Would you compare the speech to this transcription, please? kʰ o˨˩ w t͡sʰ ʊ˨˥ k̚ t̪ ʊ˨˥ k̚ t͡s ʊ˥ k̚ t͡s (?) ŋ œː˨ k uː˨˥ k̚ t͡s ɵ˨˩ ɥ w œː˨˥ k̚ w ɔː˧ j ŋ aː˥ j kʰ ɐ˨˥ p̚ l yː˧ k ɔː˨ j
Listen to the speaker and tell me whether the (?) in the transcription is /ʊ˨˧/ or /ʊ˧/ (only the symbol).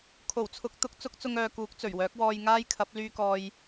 ʊ˧